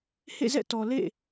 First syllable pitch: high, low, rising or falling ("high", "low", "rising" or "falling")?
falling